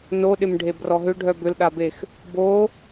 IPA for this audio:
n o ɗ ɪ m ɖʱ e b r ɔ ɦ ʏ ɖʱ œ b ʏ l ɗ a b e x | b o

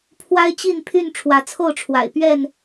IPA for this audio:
pʰ w a˦ ɪ̯ t͡ɕ i˥˨ n pʰ y˥˨ n ʈ͡ʂʰ w ä˨˦ t͡sʰ o˥˨ ʊ̯ ʈ͡ʂʰ w a̰˨˩ ɪ̯ p ɥ ɛ˥˨ n

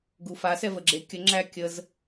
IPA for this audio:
ɡ u f a s ɛ v ə ɡ͡ǁ e kʲ ə ŋ͡ǁ æ kʲ ə z

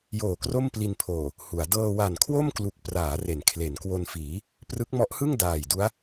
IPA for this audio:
j oː˨˩ k r o˥˩ m p l i˧ n pʰ oː˨˩ | h u˩˦ a̯ d ɤː˧ w a˨˩ n kʰ w o˥˩ m k l u˨˩ k̚ p r aː˩˦ r e˩˦ n kʰ l e˩˦ n k w o˧ n f iː˩˦ | p r ɯ˦˥ k̚ m ɔ˦˥ ʔ h ɯ˥˩ ŋ d aː˨˩ j d u˦˥ a̯

